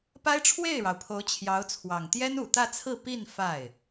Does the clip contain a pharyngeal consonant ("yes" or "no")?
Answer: no